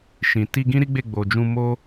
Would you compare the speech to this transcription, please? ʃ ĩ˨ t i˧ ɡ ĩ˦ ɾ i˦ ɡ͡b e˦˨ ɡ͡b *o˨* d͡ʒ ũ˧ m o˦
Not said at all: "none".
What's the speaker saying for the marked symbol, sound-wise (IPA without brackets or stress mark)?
o˨